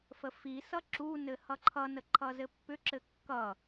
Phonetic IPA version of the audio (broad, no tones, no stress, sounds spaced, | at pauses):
f ə f i s ʌ ǁ u n ɘ h ʌ ǃʰ ʌ n ə ǃʰ ʌ z ɘ pː ʏ ǁ ɘ kː ʌ